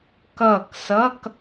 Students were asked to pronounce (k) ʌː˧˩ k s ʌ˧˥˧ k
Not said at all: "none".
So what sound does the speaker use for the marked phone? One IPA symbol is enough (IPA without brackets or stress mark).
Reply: k